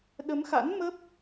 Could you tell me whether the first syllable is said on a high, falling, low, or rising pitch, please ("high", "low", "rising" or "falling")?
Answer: rising